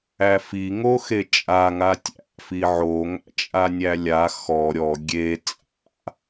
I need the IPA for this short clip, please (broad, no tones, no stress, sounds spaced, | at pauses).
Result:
æ f i ŋ o x e t͡ʃʼ a ŋ a tʲ æ̰ f i ʕ o ŋ æ̰ t͡ʃʼ a nʲ æ lʲ a x ɔ ɾʲ ɔ ɡʲ e t͡sʼ a̰